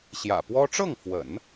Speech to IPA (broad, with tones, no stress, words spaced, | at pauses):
ɕjä̰˨˩pwɔ˥ ʈ͡ʂɤ˥˩ŋfwə̰˨˩˦n